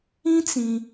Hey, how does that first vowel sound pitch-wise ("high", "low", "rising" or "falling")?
high